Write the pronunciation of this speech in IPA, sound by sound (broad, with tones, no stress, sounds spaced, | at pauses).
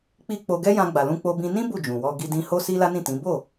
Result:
k͡p i˧ k͡p o˧ ɡ ɛ˦ j ã˧ ɡ͡b a˨ l ũ˧ k͡p o˧ b ĩ˧ n ĩ˦ b u˦˨ d͡ʒ ũ˨ w ɔ˧ ɡ i˧ d ĩ˧ h o˦ s i˦ l a˦ n ĩ˦˨ t ĩ˨˦ b o˦˨